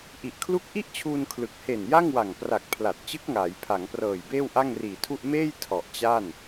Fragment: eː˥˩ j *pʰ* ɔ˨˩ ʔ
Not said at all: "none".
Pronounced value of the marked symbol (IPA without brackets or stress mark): tʰ